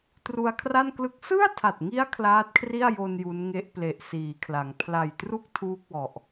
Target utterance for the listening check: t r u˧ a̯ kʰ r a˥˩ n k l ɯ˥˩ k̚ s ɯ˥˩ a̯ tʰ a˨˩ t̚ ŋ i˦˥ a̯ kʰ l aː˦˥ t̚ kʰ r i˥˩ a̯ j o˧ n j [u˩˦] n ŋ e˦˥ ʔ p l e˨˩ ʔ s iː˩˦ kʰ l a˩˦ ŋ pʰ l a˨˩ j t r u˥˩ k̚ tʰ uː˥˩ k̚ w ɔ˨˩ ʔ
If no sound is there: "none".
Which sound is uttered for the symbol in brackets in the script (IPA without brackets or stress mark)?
u˦˥